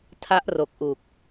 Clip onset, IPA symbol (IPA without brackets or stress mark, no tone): tʰ